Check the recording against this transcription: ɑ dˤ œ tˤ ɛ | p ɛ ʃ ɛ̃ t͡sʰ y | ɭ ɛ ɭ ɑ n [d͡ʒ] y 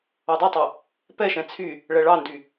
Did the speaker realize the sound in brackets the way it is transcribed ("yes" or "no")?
no